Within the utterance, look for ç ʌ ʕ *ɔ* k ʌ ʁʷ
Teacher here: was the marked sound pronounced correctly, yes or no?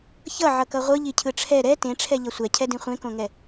no